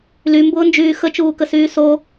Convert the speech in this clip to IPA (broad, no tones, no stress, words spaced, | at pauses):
lymbʊːnd͡ʒyː xət͡ʃuːkəsyː so